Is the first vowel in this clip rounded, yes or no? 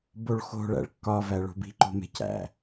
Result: yes